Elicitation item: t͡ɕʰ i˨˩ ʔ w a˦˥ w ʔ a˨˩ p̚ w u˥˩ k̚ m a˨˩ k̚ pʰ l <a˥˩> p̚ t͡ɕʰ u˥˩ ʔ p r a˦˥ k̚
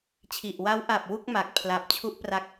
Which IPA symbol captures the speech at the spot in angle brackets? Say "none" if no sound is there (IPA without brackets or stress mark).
a˨˩